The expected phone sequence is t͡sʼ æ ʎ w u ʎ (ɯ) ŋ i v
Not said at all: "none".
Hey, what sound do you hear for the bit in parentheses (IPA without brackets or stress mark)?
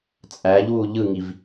ɯ